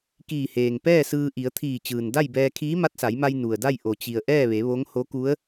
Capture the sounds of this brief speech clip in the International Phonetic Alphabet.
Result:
k iː˧˩ h eː˩ ŋ p ɛː˥˨ s ɯː˧ ʔ i˩˧ ə̯ t̪ʰ iː˧˩ t͡ɕ ɯː˩ n d a˥˨ j b ɛː˧ kʰ iː˧˥ m a˧˥ t̚ s a˩˧ j m a˧ j n u˩ ə̯ d a˥˨ j ʔ o˩ t͡ɕ i˩ ə̯ ʔ ɛː˥˨ ʋ e˩˧ ʋ o˧˥ ŋ h o˧˥ k u˧˥ ə̯

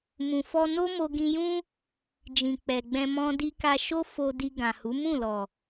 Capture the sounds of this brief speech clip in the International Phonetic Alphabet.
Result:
m ũ˨ f ɔ˧ n o˦ m o˧ ɡ ĩ˧ j ũ˦ | d͡ʒ ĩ˨ k͡p ɛ˨ ɡ͡b ɛ̃˧ m ɔ̃˧ d i˧ k a˧ ʃ o˦ f o˧ d i˧ ɡ ã˨ h u˨˦ m ũ˦˨ l ɔ˨

